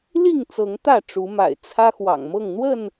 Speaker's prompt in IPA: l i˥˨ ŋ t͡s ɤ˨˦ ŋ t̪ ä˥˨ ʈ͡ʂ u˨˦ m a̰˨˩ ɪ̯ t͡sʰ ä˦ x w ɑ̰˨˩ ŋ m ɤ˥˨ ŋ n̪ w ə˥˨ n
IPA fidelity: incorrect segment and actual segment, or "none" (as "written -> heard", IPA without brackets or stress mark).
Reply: none